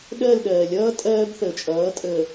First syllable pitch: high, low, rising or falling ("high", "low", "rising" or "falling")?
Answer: falling